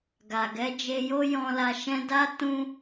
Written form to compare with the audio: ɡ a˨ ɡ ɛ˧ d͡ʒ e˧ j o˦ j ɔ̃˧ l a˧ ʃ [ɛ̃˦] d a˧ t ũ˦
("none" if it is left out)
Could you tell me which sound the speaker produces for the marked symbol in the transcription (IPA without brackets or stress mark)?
ɛ̃˧